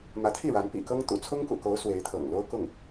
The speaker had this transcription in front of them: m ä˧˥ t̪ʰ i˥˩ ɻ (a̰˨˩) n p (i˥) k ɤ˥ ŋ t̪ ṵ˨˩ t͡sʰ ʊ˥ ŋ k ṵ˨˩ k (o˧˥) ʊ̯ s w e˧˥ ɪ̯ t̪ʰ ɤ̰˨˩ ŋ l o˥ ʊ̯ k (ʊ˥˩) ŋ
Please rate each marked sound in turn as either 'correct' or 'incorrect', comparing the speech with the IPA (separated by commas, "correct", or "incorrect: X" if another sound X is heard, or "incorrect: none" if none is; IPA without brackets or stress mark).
incorrect: a˧˥, incorrect: ḭ˨˩, correct, correct